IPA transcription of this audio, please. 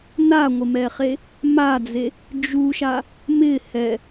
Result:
n a ŋʷ ɪ m ɛ χ e | m a d͡z e | d͡ʒ u ʃ a | m ɪ h ɛ

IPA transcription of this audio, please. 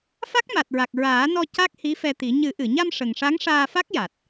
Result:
f a˦˥ k̚ m a˨˩ t̚ ɹ a˨˩ k̚ ɹ aː˨˩˦ n ɔ˧ c a˦˥ k̚ h i˧˥ f ɛ˧ t̪ i˨˩˦ ɲ ɨ˨˩˦ ʔ ɨ˨˩˨ ɲ a˧ m ʂ ə˨˩ ŋ ʂ a˧˥ ŋ ʂ aː˧ f a˦˥ k̚ j a˨˩ t̚

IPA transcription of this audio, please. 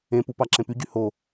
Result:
ẽ p u p ɑ ǁ ẽ p y ɟ y h o

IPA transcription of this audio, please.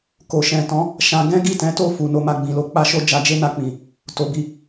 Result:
k o˨ ʃ ɛ̃˨ t ɔ̃˨˦ | ʃ ã˧ ɡ ɛ̃˦ ɡ i˦˨ t ɛ̃˨˦ t o˦˨ f u˨ n o˧ m a˧ ɡ͡b ĩ˨ l o˧ k͡p a˦ ʃ o˦ d͡ʒ a˧ d͡ʒ e˦ n a˧ k͡p ĩ˨ | t o˨ b i˧

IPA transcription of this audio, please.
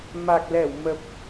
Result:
m a˨˩ k̚ l ɛ˧˩ w m ə˨˩ p̚

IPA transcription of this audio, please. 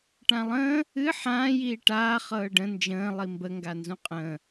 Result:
ʈ ã lˠ ə̃ː | ɨ ħ ãː j iː ʈ aː χ ɤː ɖ ə̃ n d͡ʒ ə̃ː lˠ i m b ə ŋ ɡ a n z ũ qʼ ə̃ː

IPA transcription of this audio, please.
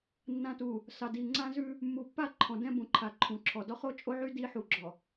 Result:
nː ã˨ t u˨ | s ɑ˨ d i˨ ŋ͡ǀ ã˦ z ʉ˦ | mː u˨ pː a˦ ǃʰ ɔ̃˨ d ɛ̃˦ b ũ˨ ǃʰ a˨ ǃʰ ũ˨ ǁʰ ɔ˨ d ɔ˦ χ o˦ t͡ʃʼ o˦ ʕ y˦ d i˦ ħ u˨ ɡ͡ǁ ɔ˨

